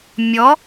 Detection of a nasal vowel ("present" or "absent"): absent